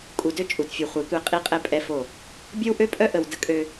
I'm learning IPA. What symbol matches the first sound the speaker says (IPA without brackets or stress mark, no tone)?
kʼ